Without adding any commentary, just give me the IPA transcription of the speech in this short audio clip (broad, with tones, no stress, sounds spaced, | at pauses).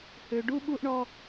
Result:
h ø˧ ɖ u˦ ɓ u˦ ʔ ɳ ɔ˦